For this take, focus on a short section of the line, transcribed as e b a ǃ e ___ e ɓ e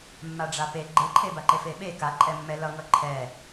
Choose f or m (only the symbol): f